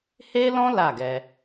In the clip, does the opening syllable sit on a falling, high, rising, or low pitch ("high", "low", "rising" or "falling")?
high